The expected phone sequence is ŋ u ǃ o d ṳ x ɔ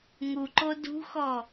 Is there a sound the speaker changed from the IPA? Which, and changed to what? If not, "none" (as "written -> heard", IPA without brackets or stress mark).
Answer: none